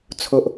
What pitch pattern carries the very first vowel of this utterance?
low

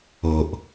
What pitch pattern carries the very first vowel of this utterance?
low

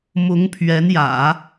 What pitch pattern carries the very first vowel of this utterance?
rising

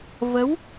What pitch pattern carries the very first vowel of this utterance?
rising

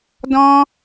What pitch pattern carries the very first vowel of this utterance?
high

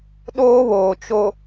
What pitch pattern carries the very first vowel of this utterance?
high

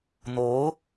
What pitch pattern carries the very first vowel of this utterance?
rising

